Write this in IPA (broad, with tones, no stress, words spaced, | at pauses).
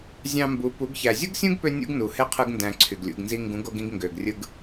zʲɑ̃˧mbu˨˦ pu˨˦ɡ çæ˨zʲu˦ɡsʲũ˦ɡpø˧ nʲṵ˦ɡnu˨ he˦qʰɯ˧ɡ ndæ̃˧ǀʰy˨ɡlʲṵ˨˦ɡnzi˦ ŋɡũ˨˦ɡo˧ɡĩ˧ɡ ŋɡø˨ɡrʲɯ˧ɡ